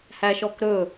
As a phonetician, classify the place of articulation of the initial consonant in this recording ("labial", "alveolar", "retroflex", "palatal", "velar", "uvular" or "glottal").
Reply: glottal